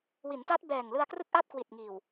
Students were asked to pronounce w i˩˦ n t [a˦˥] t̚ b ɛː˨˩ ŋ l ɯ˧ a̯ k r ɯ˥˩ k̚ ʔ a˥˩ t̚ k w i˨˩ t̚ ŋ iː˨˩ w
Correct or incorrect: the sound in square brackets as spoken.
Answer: correct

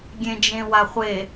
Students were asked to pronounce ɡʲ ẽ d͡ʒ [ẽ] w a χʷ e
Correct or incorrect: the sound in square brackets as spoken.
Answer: correct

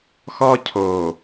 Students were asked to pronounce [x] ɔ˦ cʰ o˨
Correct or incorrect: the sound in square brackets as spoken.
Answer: correct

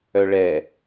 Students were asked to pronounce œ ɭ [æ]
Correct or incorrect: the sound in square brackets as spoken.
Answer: incorrect: ɛ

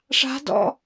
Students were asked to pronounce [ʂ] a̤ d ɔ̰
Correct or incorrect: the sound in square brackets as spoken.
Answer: correct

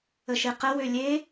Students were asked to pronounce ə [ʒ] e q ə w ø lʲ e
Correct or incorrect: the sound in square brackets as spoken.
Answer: incorrect: ʃ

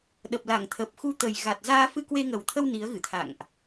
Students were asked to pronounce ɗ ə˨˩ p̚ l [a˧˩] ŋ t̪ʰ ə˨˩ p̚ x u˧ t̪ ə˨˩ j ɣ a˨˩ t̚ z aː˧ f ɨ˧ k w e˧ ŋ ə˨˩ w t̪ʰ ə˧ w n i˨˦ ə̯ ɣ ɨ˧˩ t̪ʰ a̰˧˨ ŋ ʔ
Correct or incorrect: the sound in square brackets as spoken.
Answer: correct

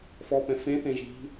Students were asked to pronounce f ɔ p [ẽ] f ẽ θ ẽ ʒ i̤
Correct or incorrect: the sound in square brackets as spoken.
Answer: incorrect: ɛ̃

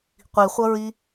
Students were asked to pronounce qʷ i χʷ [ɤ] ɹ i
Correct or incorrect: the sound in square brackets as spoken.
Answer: correct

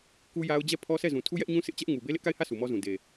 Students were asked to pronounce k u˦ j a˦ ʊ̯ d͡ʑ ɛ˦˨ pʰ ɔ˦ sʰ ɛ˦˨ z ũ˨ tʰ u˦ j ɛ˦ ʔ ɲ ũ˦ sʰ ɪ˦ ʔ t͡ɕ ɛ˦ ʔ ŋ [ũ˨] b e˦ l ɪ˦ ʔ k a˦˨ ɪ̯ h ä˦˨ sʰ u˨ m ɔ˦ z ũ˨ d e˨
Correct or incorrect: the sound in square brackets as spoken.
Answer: incorrect: u˨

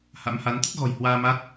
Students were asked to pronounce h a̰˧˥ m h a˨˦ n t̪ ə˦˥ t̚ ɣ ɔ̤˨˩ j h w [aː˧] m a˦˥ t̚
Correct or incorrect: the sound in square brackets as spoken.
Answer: correct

